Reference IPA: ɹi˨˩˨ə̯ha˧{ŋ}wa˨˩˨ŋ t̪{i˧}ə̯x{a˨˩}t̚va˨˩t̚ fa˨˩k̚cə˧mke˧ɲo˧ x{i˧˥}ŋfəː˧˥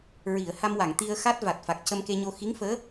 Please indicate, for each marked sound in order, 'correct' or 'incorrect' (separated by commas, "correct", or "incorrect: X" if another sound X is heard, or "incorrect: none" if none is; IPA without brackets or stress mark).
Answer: incorrect: m, correct, incorrect: a˦˥, correct